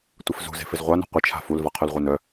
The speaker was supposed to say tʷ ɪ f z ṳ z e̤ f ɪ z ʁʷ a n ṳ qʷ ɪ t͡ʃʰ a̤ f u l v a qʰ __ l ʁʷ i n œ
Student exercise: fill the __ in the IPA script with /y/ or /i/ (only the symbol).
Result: y